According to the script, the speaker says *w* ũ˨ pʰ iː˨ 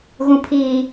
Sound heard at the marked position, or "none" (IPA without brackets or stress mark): ɣ